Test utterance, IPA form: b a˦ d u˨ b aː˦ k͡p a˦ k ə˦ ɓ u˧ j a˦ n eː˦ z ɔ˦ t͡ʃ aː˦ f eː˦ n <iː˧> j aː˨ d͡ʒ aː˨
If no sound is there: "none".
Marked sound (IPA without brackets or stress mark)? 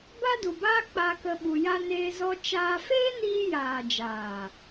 iː˧